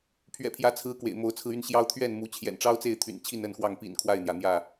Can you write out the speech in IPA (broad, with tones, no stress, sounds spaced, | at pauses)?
pʰ ɥ ɛ̰˨˩ pʰ j ä˨˦ t͡sʰ ɹ̩˨˦ k w ḛ˨˩ ɪ̯ m o˨˦ ʊ̯ t͡sʰ ɹ̩˧ y˥˨ n ɕ j ɑ˦ ʊ̯ t̪ʰ ɥ ɛ˥˨ n m u˨˦ t͡ɕʰ j ɛ̰˨˩ n ʈ͡ʂ ɑ˦ ʊ̯ t͡s e˥˨ ɪ̯ t̪ʰ y̰˨˩ n t͡ɕʰ i˥˨ n ə˥˨ n x w ɑ˥˨ ŋ p ḭ˨˩ n kʰ w a˥˨ ɪ̯ n̪ j ä˩ n̪ j ä˥˨